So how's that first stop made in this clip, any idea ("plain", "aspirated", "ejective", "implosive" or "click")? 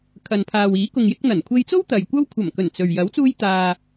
aspirated